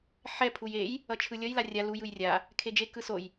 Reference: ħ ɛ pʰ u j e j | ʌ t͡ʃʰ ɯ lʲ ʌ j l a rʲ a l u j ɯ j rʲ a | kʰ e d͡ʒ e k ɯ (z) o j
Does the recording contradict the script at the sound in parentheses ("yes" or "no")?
yes